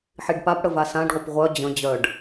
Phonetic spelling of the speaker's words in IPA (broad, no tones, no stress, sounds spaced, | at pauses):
ħ i ɖ p a p ɽ ə v a s ã ɖ ʁʷ ɪ p ʁʷ œ d͡ʑ ə̃ d͡ʑ œ ɖ